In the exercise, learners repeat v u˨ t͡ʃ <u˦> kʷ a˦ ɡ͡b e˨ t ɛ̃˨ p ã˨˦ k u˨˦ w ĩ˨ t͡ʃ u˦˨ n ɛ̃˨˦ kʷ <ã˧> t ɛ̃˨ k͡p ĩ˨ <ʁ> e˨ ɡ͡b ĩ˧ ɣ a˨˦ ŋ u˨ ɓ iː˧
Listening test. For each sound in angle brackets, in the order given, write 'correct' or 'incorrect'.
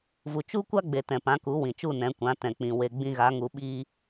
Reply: correct, incorrect: ã˨˦, incorrect: w

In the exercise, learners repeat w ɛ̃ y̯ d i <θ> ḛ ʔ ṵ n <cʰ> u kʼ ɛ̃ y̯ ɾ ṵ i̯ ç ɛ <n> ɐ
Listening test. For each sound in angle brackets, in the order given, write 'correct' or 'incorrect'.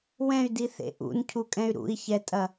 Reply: correct, correct, incorrect: tʼ

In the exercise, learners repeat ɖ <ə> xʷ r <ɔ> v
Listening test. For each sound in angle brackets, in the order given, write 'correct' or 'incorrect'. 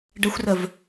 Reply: correct, incorrect: ə

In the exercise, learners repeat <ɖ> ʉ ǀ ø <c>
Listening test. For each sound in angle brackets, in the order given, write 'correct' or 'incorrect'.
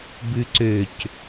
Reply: incorrect: b, correct

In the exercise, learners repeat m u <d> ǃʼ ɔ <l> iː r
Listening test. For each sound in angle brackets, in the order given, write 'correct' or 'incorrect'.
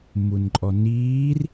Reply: incorrect: n, incorrect: n

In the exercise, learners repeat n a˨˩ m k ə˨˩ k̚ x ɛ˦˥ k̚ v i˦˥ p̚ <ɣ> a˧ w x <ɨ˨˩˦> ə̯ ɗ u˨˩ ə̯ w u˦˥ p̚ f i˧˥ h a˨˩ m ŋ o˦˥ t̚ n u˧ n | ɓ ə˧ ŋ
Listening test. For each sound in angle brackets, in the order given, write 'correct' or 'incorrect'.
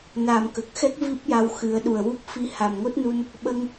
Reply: incorrect: j, correct

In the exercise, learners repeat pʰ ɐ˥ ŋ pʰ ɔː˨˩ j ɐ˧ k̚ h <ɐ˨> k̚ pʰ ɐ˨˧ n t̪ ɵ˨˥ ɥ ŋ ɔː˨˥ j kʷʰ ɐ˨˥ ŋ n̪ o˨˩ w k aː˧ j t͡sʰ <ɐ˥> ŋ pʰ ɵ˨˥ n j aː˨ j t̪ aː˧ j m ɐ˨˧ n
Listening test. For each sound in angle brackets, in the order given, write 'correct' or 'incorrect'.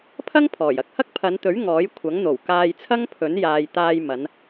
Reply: incorrect: ɐ˥, correct

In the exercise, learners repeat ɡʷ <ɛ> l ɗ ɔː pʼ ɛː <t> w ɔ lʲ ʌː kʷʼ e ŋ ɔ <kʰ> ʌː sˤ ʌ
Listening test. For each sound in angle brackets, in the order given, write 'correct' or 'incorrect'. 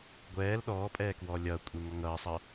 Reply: incorrect: ɛː, incorrect: k, incorrect: ŋ

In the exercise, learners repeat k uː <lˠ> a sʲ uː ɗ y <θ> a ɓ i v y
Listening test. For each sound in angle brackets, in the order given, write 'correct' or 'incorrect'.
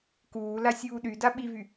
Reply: incorrect: l, incorrect: d

